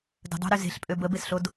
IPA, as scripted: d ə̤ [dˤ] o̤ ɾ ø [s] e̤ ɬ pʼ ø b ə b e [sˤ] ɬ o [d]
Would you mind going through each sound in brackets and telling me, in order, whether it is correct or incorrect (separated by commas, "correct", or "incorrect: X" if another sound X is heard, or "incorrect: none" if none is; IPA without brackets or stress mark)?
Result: correct, incorrect: z, incorrect: s, correct